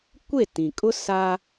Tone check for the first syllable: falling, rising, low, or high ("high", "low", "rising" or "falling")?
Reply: falling